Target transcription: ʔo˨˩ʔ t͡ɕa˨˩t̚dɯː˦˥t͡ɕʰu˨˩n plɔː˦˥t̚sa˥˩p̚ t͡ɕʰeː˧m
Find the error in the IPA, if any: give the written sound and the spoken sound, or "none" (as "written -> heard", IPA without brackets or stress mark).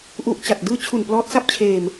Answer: o˨˩ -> u˨˩